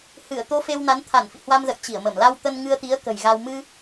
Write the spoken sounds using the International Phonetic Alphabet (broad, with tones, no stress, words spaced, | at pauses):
hɨ˧˩ə̯ t̪o˧fe˧wna˨˦n t̪ʰa˧˩nfḭ˧˨hwa˧mzə̰˧˨j t͡ɕi˧˩ə̯mə˧˩m la˧wt̪ə˧n ŋɨ˧ə̯t̪i˨˦ə̯ kə̤˨˩jɣa˧w mɨ˧